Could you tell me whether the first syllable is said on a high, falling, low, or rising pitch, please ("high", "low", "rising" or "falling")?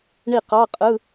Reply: falling